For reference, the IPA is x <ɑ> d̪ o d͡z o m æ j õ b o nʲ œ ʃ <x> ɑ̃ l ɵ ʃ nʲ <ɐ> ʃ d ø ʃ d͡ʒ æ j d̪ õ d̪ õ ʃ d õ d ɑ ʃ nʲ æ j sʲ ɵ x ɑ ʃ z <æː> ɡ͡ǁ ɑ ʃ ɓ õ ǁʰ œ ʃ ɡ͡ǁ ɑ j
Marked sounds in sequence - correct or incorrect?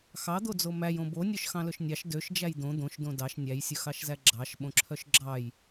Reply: correct, correct, incorrect, incorrect

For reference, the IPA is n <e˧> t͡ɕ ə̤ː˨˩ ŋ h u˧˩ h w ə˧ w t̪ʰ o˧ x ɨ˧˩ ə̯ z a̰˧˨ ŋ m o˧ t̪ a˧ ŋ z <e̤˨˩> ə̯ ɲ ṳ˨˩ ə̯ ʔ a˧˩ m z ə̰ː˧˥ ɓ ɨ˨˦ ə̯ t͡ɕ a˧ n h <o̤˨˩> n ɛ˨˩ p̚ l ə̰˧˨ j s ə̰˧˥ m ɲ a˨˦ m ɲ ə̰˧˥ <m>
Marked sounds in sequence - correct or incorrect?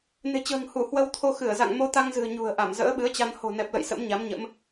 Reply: incorrect, incorrect, correct, correct

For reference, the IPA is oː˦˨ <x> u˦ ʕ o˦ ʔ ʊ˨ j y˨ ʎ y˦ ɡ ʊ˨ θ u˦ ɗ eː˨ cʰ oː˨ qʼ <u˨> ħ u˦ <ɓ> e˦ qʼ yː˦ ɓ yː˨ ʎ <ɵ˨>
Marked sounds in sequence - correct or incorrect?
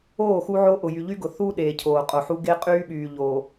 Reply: correct, incorrect, incorrect, incorrect

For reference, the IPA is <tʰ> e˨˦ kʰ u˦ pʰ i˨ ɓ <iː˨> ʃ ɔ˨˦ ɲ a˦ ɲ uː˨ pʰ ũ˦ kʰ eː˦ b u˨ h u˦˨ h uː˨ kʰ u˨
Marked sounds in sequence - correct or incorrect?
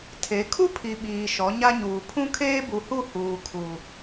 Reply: correct, correct

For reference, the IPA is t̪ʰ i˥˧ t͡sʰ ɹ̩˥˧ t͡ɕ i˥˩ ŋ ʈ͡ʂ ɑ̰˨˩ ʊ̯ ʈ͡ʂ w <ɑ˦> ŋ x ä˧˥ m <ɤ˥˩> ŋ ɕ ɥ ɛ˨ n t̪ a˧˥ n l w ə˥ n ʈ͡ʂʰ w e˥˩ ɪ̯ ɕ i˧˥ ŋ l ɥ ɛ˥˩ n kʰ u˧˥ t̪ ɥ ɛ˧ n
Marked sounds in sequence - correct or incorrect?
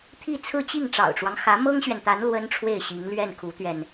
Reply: correct, incorrect

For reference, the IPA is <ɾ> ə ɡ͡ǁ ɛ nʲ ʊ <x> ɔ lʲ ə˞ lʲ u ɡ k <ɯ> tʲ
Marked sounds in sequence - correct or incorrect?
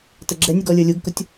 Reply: incorrect, incorrect, incorrect

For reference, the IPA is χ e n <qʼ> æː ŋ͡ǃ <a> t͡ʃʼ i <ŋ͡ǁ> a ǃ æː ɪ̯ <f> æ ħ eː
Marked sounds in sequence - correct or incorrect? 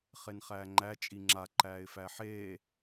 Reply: incorrect, incorrect, correct, correct

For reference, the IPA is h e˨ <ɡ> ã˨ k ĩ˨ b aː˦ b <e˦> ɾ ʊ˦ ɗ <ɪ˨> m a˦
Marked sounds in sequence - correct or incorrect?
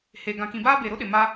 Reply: correct, incorrect, correct

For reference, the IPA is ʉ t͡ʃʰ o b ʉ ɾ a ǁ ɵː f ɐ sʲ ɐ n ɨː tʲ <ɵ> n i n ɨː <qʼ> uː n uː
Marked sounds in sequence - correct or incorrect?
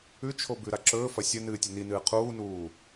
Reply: correct, incorrect

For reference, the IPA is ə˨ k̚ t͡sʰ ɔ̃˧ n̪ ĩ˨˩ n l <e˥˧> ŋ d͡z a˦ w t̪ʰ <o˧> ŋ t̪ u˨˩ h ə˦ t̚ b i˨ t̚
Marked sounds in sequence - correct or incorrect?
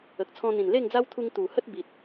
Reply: correct, incorrect

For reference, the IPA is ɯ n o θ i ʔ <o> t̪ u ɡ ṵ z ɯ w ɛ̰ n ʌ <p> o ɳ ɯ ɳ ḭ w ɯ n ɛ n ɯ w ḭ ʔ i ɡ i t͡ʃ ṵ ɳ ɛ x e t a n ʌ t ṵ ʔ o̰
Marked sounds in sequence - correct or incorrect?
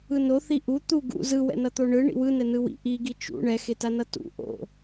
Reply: incorrect, incorrect

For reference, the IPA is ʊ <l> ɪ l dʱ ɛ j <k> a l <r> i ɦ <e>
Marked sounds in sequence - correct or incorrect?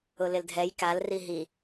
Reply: correct, correct, correct, incorrect

